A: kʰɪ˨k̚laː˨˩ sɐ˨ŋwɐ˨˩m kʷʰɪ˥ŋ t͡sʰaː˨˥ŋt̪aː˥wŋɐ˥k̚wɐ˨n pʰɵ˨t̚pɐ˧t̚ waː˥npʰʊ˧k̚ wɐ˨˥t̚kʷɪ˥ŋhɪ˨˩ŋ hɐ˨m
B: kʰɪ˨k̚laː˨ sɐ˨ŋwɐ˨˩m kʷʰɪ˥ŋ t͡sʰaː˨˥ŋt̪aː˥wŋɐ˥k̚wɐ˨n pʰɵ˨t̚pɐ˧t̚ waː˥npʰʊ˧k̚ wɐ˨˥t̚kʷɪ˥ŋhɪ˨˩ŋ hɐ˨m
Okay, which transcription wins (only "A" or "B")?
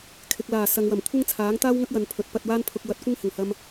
A